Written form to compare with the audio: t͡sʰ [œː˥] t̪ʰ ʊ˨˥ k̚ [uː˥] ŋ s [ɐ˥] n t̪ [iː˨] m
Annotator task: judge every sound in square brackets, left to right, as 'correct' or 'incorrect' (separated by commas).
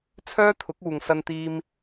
correct, incorrect, incorrect, incorrect